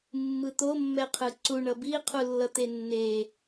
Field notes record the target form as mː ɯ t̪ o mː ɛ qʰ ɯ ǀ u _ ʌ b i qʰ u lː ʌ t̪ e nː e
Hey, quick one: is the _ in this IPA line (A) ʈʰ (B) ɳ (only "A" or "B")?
B